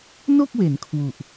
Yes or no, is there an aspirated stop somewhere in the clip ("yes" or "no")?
yes